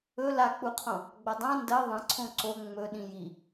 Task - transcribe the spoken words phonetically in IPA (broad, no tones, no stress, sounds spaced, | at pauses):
ɵ l a k͡p u qʰ õ | ɡ͡b ɐ dˤ ã n d ɐ ðˤ ɐ̃ ǀʰ õ ǀ o ŋ͡m ɵ ɗ ĩ j i